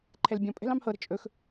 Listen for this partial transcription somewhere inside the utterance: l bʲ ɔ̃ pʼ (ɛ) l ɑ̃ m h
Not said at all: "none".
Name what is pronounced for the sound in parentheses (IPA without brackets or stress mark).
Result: ɛ̤